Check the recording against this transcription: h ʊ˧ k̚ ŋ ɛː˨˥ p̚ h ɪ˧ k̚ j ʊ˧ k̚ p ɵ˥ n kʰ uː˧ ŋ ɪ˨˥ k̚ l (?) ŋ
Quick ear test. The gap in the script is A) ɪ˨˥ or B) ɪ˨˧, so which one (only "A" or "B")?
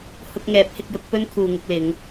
B